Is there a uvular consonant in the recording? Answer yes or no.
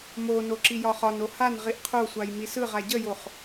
yes